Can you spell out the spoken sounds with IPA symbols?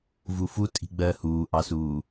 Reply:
v u f u tʼ i̤ ɡ͡b ɜ h uː ʔ ɑ s uː

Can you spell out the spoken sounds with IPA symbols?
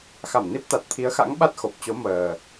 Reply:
x a˧˩ m n i˦˥ p̚ t̪ a˨˩ t̚ t̪ʰ i˨˦ ə̯ x a̰˧˥ ŋ ɓ a˦˥ t̚ x o˨˩ p̚ t͡ɕ o˨˦ m əː˨˩

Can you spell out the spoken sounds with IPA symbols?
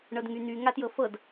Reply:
ɳ ɤ d ŋ y n̪ y ŋ a t j ɤ f ɤ d

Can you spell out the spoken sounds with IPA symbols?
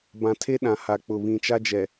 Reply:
b ã˨ tʰ e˦ ɗ ã˨ h a˨ k͡p ʊ˨ β ĩ˨ t͡ʃ a˦ d͡ʒ ɛ˨

